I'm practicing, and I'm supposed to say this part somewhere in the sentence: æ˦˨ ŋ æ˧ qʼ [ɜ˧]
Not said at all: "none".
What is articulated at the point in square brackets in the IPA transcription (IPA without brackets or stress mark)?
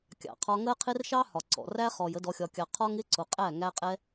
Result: ɛ˧